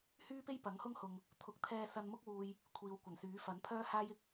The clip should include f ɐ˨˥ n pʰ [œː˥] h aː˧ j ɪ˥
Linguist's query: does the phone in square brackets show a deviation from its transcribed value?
yes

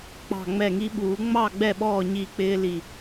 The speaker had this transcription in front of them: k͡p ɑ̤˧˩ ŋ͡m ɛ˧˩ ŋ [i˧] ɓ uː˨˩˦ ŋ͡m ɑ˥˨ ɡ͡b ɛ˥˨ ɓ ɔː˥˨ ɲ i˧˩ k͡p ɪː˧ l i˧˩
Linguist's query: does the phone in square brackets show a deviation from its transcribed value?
no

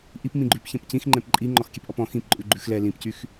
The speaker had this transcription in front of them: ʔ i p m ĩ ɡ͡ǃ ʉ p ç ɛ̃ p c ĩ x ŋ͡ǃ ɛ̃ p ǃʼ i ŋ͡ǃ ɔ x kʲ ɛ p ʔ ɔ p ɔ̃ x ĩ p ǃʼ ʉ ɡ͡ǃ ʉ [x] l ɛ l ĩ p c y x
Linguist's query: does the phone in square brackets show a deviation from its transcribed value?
no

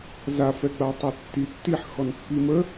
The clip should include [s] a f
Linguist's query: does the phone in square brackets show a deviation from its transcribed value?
yes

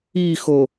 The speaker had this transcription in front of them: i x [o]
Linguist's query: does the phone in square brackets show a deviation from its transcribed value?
no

